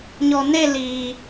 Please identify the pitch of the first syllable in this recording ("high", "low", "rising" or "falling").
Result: low